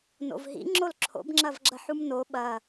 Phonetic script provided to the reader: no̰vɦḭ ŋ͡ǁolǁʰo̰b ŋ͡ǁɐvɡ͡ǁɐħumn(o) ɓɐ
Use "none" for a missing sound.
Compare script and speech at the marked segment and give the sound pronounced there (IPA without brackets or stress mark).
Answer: o